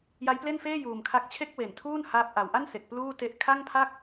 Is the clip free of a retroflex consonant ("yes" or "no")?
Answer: yes